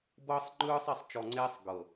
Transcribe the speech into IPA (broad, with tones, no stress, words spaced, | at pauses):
bɤː˦sˤŋ͡ǃɯː˦sˤ e˨sˤt͡ʃɔ˨ŋ͡ǀeː˦sˤ ɡɤ˨